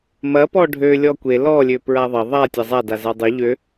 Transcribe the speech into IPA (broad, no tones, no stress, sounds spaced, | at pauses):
m ɐ p ɔ ɖʱ ø lʲ ɔ kʷ e l ɔ lʲ ø p ɹ a ðˤ ɐ ðˤ a tʲ a zˤ a d a z a dˤ ø ʎ ø